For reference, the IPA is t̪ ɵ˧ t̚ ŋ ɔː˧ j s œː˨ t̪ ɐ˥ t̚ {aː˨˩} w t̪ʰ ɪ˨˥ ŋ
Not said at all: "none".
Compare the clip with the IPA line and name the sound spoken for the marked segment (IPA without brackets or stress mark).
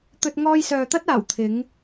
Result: aː˨˩